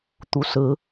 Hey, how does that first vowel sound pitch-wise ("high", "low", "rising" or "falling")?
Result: low